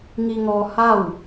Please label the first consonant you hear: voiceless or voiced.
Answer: voiced